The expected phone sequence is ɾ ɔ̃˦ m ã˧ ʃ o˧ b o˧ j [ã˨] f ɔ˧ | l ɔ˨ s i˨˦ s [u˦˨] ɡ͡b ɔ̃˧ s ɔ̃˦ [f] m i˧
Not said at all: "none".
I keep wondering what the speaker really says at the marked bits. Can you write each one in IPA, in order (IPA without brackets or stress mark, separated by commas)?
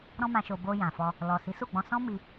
ã˨, u˦˨, none